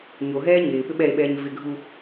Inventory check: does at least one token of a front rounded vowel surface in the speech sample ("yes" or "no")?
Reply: yes